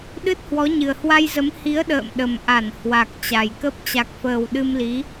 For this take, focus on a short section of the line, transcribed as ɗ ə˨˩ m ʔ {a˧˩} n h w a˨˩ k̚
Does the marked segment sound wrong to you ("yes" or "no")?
no